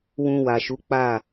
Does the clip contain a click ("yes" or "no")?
no